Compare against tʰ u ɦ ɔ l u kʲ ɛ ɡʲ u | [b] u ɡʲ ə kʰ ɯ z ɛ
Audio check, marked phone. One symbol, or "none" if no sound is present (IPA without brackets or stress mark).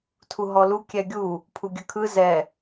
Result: pʰ